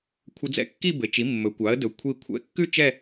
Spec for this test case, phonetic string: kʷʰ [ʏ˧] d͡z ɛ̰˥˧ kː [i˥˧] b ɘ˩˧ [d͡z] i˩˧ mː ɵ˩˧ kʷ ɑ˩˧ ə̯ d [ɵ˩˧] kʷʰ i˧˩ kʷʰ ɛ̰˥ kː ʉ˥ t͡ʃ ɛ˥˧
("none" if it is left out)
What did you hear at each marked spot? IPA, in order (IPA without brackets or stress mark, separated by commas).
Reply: ə˧, i˥˧, t͡ʃ, ɵ˩˧